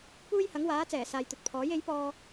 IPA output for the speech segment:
p uː˥ j h ɐ˨˥ ŋ w aː˨˥ t͡s ɛː˨˩ s aː˨ j t̪ ɵ˨ t̚ pʰ ɔː˨˥ j e˨˥ j p ɔː˧

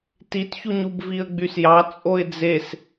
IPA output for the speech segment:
t i t ç u ɲ u b v i ə̯ ɡ͡b y s j ɑ t͡sʼ o ɪ̯ d͡z e s

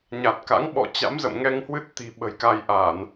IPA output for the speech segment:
ɲ a˨˩ t̚ k a̰˧˥ ŋ ɓ ɔ̰˧˨ t͡ɕ a̰˧˥ m z ə̰˧˨ m ŋ ɛ˧ ŋ h w ɨ˦˥ t̚ t̪ i̤˨˩ ɓ ə̤˨˩ j k a˧ j ʔ a˧˩˨ n

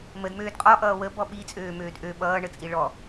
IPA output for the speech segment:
m ə d m øː d qʼ ɔ ʔ ʌː w ə b ɔ ɓ i t͡sʼ øː m øː d ʔ ø ɓ ʌː ɳ ə t͡sʼ i ɭ ɔ

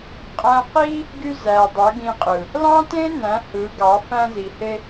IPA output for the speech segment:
qʼ æ̃˦ q i˦ | ɡ y˧ z æ˨ dˤ ø˨˦ ɡ ĩ˧ qʼ ɯ˨ | l ɑ̃˦ t ẽ˦ n æ̃˨˦ h ɯ˨˦ ɡ ɑ˨˦ f æ̃˧ z i˨ h e˧

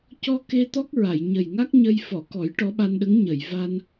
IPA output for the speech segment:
c ɔ˧ k e˧ t̪ ɔ˦˥ k̚ ɹ a˨˩˨ j ɲ ə˨˩ j ŋ a˦˥ k̚ ɲ ə˧ j f ɔ˨˩˨ k ɔ˨˩˦ j ʈ ɔ˧˥ ɓ a˧ n ɗ ə˧˥ ŋ ɲ ə˨˩˨ j v a˧ n

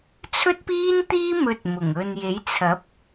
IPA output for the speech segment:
t͡sʰ ɵ˥ t̚ p iː˥ n t̪ iː˥ m ɵ˧ t̚ m ʊ˨˩ ŋ ɵ˨ n j e˨˥ j t͡sʰ ɐ˨˥ p̚

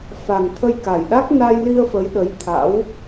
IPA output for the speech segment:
f a˨˩ ŋ t̪ʰ ə˧ j k a˨˩ j ɗ a˦˥ k̚ n a˧ j l i˧ ə̯ f ə˨˦ j ɗ ə˨˦ j t̪ʰ a̰˧˥ w

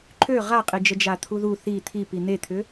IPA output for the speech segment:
ǃʰ ø ʁ a qʼ i d͡ʒ ə d͡ʒ a t̪ʰ u ð u θ i t̪ʰ i p i n̪ e t̪ʰ ʏ

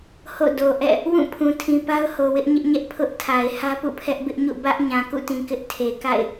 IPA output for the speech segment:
h o̰˦˨ d o˨ ʔ ɛ̰˦˨ | w ũ˦˨ pʰ ũ˨ tʰ ĩ˨ p a˦ ʊ̯ h o˨ w ɪ˦ ʔ ɲ ɪ˦ ʔ ɲ ɛ˦ ʔ pʰ ʊ˦ ʔ tʰ a˨ ɪ̯ h ä˦ p ṵ˦˨ pʰ ɛ˦ ʔ b ɪ˦ ʔ ɲ ṵ˦˨ b ä˦ ʔ ɲ ã˨ k ṵ˦˨ t ĩ˨ k ɪ˦ ʔ tʰ e˨ k a̰˦˨ ɪ̯

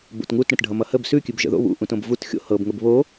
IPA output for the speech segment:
b o̰ t ŋ u t ɽ ə̃ t ɖʱ ʌ m ʌ h ə b s ʉ kʲ ʉ b ʒ ə̰ ð o̰ β ṵ ʔ ũ t õ b v u t xʲ o̰ h ɤ b ŋ ə b β o

